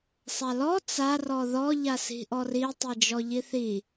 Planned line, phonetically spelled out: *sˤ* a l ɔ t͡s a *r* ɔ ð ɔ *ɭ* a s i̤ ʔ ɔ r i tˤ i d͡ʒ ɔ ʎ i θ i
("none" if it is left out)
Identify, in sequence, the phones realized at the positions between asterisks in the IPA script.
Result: sˤ, r, ʎ

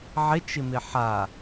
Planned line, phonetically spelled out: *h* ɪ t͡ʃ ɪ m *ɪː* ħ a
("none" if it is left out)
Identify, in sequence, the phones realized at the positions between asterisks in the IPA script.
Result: ʕ, ɪ

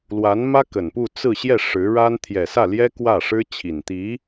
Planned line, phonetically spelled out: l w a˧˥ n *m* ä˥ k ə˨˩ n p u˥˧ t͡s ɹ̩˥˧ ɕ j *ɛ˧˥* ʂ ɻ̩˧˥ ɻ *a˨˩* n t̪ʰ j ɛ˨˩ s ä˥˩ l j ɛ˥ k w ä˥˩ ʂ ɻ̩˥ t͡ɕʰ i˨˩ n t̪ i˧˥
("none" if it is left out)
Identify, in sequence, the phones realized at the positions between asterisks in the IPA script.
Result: m, ɛ˥˩, a˥

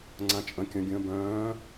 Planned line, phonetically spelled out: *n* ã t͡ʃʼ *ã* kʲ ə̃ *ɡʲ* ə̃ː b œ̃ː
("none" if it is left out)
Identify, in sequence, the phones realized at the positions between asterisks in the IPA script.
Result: ŋ͡ǀ, ə̃, ɡʲ

